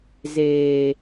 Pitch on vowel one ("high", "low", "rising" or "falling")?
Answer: low